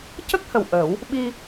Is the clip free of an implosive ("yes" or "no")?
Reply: no